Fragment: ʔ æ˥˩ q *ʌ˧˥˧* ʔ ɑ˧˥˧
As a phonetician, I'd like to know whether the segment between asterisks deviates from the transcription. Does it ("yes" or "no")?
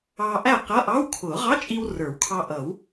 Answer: no